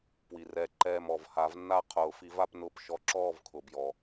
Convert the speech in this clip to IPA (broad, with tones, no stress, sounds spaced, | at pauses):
p w i˩ r ɛ˧˩ ǃ ɛː˧˩ m ɔ˩ v h a˨˩˦ v nː a˥˨ qʰ ʊː˨˩˦ f i˨˩˦ v a˥˨ p n ʊː˧˩ p ʃ ɔ˧˩ ǁ ɔː˥˨ v kʰ ʊ˩ b j ɔ˩